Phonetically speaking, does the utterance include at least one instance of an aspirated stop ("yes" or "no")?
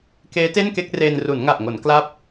no